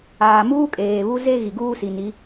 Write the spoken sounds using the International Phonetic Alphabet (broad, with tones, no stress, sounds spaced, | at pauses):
aː˨ m uː˦ kʼ eː˨ β u˦ z e˦ ɣ i˨ ɡ uː˦ s i˨ n i˨˦